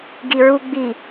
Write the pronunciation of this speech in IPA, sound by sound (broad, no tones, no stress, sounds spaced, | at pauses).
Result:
ɡ i ɹ u ɡ͡b i